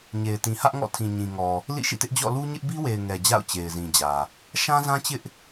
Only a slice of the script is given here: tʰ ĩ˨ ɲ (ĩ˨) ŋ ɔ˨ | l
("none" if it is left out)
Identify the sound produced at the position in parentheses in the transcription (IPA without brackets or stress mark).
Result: ĩ˨